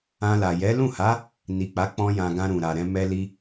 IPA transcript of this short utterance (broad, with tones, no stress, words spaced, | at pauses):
ã˧la˨ jɛ˨˦ lũ˦˨ha˨˦ | ni˨k͡pa˨˦ k͡pɔ̃˧jã˨ɡã˧ ɾũ˨ ɾa˨ɾɛ̃˧ mɛ˧li˧